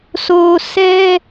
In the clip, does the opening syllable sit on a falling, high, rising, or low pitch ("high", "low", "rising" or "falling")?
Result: low